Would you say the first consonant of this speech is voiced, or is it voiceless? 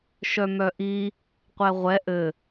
voiceless